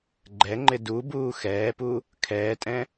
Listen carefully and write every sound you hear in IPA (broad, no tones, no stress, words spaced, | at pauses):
ɡ͡ǃɛŋ͡ǃɪ dubuː xɛːpu | kʰɛːtʼɛ̃